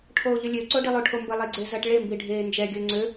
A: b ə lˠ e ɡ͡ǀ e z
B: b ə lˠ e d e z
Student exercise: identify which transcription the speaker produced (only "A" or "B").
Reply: A